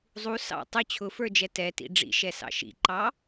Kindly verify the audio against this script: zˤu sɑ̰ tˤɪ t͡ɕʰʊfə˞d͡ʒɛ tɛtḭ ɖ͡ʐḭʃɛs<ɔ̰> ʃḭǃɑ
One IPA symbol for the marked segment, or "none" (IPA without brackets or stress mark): ɑ̰